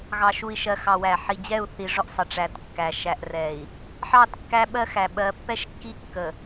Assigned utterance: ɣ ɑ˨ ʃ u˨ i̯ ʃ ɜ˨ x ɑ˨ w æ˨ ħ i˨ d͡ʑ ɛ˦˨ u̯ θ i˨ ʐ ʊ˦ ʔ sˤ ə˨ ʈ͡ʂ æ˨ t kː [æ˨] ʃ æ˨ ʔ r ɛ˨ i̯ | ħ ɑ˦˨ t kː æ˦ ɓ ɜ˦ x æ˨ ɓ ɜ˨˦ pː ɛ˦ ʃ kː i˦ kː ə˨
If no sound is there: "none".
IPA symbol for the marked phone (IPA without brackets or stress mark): æ˨